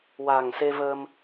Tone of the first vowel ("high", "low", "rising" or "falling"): low